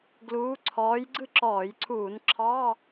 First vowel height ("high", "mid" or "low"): high